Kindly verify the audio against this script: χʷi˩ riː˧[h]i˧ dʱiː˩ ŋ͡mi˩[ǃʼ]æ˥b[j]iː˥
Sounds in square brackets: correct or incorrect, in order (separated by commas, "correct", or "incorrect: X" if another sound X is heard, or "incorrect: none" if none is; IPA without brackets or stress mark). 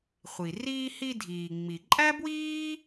correct, correct, incorrect: w